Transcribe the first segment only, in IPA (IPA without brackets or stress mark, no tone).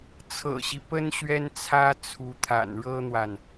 t͡sʰ